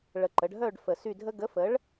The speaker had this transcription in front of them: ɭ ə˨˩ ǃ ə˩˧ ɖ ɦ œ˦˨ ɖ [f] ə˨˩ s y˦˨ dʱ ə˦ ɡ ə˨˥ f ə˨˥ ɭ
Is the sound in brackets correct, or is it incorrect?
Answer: correct